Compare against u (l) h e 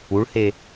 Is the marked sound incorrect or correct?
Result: incorrect